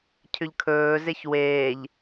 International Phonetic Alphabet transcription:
cʰ ʏ ʎ kʰ ɵː z e ç w eː ʎ

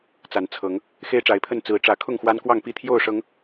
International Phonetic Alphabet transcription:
t͡s a˨˦ n t͡sʰ ɤ˨˦ ŋ | x e˦ ɪ̯ ʈ͡ʂ a˨˦ ɪ̯ pʰ ə˥˨ n t͡s ɹ̩˨˦ ʈ͡ʂ ä˨˦ kʰ ʊ˥˨ ŋ x w a˦ n k w ɑ˥˨ ŋ p i˥˨ t̪ʰ j o˥˨ ʊ̯ ʂ ɤ˨˦ ŋ

